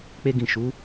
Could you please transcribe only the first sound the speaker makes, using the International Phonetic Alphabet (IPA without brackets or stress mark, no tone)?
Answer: k͡p